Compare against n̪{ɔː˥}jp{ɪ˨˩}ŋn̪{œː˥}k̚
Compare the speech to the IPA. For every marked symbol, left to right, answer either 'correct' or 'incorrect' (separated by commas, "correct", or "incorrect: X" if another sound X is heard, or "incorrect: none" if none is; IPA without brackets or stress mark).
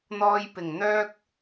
incorrect: ɔː˧, correct, correct